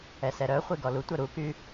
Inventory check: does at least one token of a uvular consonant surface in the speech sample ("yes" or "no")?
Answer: yes